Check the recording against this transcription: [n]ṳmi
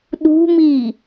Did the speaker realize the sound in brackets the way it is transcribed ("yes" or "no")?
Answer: no